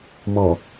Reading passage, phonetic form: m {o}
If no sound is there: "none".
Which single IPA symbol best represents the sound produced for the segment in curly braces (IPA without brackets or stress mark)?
ɔ